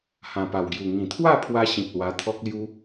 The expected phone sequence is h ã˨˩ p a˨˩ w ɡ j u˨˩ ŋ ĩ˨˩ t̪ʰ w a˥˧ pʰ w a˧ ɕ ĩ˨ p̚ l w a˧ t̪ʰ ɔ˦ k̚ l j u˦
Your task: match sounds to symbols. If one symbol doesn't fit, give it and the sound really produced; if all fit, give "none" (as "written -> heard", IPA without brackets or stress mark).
none